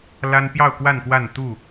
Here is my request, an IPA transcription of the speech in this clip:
l a˦ n p j ɑ˥˨ ʊ̯ k w a˥˨ n k w a˥˨ n t̪ u˥˨

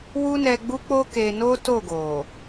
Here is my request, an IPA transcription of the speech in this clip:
w u˦ n ɛ˧ ɡ͡b u˦ k͡p o˦ k e˧ n o˦ t o˦˨ ɡ o˨

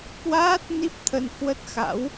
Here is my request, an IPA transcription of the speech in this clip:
k w aː˦˥ t̚ n i˦˥ p̚ t̪ʰ ə˧ n h w ə˦˥ t̚ x a̰˧˥ w

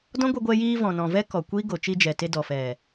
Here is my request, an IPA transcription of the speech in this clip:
d ɔ̃˦ ɡʷ ɛ˧ ɡʷ ɛ˧ j iː˧ v ɔ̃˨ n ɔ̃˨ v ɛ˦ k ɔ˨ kʷ iː˦ ɡ o˨ t͡ʃ i˧ d͡ʒ ɛ˨ t e˧ d ɔ˨ f ɛ˨

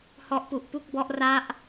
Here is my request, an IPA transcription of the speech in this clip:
h ɔ˦˥ ʔ p u˨˩ ʔ p u˥˩ k̚ b ɔ˦˥ ʔ r a˦˥ ʔ

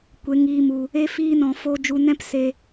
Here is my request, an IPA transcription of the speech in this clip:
kʷ e˧ ŋ iː˧ m u˦ | e˦ f iː˦ n ɔ̃˧ f o˧ d͡ʒ u˧ n ɛ̃˦ p s e˦

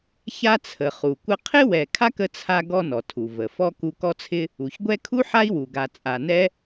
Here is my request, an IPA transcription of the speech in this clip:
ç a˦ t͡sʰ ə˩ χ u˩ kʷ ə˦ qʰ ɪ˥ w ɛ˨ kʰ a˥ k ə˦ t͡sʰ a˦ ɡ ɔ˦ n ɔ˩ tʰ u˩ v ə˩ f ɔ˥ k u˦ k ɔ˥ t͡sʰ ɪ˥ | u˩ ç ɡʷ ɛ˦ kʰ u˥ ħ a˥ i̯ w u˩ ɡ a˨ t͡sʼ a˨ n ɛ˥

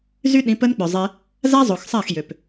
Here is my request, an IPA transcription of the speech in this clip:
z y˦ ɗ ĩ˨˦ p ə˦ n k͡p œ˨ zˤ e˧ | z a˦ zˤ o˨ x sˤ a˦˨ x j ø˨ p

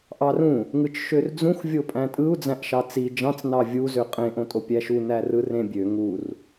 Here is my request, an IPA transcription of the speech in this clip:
ʔ ɑ r ũ | ŋ ɯ t͡ʃ ʃ ø r d͡z ũ x vʲ o pʼ æ̃ tʼ ɯ u̯ d͡z æ̃ ʔ ʃ ɑ t͡s i d͡ʒ ɑ̃ t͡s n ɑ vʲ u z ø qʼ ẽ ʔ õ tʼ o pʲ æ ʃ u n æ r ɯ r ẽ bʲ ø ŋ u r

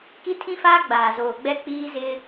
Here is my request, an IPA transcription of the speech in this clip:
k i˦ tʰ ĩ˦ f aː˦ ɡ͡b aː˨ z oː˨ ɡ͡b ɛ˦ k͡p iː˦ z ɪ˦

